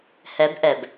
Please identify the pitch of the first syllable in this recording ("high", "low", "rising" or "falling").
rising